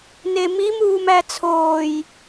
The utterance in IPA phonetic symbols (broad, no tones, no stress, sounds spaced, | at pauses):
n e m i m uː m æ t͡sʰ oː j